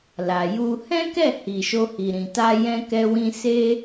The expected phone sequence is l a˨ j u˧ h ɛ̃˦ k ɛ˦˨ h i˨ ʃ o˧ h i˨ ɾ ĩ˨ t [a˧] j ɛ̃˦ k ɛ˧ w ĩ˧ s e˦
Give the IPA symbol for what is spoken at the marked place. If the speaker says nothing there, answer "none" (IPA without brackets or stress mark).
a˧